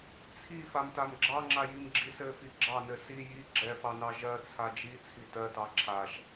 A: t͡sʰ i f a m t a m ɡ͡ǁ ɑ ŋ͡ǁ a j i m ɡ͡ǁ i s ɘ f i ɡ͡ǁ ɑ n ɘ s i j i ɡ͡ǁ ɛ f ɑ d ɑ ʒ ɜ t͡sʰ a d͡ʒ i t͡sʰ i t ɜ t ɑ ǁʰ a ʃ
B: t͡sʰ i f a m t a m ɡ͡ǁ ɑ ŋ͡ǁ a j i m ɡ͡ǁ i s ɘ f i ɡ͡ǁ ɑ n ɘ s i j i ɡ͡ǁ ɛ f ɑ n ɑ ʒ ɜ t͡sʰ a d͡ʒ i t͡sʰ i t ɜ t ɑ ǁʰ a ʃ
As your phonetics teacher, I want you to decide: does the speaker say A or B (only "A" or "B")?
B